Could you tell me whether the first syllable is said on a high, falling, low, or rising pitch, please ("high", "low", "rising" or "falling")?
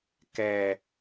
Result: low